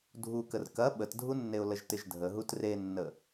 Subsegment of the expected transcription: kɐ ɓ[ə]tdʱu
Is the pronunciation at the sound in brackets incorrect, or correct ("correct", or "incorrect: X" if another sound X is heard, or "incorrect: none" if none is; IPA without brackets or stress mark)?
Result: correct